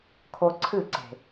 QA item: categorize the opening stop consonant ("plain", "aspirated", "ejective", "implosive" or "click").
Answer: aspirated